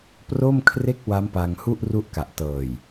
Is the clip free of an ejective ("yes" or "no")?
yes